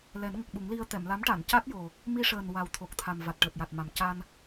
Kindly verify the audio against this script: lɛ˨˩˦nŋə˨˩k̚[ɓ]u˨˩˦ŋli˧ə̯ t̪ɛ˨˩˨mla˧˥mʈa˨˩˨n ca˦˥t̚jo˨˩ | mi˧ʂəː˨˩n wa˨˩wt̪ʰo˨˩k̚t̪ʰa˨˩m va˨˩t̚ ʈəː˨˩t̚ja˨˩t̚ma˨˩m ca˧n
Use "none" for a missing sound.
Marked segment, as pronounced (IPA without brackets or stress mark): ɓ